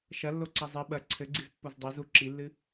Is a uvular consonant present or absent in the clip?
absent